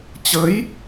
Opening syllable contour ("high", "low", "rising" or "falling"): rising